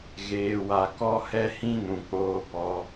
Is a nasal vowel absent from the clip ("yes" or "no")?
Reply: no